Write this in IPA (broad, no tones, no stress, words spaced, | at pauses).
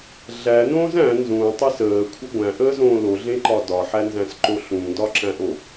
ɮænõːz æ̃ nzũːtˤis əːkʷʰɪ ɡʷæ̃ʔəːzõː loɮẽǃɒ dɒħænzæ̃sǃo ɬũdɒǁæ̃ʔo